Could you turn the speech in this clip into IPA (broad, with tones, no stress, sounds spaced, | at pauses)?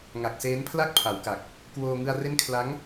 ŋ a˨˩ k̚ s eː˦˥ n pʰ l a˥˩ k̚ pʰ a˩˦ w k a˨˩ k̚ | k w oː˧ ŋ ɯ˧ a̯ r e˦˥ n kʰ l a˦˥ ŋ